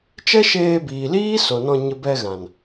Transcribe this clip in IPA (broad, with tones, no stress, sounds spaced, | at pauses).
t͡ʃ ɛ˦ ʃ eː˧ b iː˨ l iː˦ s o˨ n ɔ̃˧ ɲ ə˧ b ɛ˧ ɣ ã˨ n